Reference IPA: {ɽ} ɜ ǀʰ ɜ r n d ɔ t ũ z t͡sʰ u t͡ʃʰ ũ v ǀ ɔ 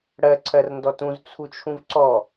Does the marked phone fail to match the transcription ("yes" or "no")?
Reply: no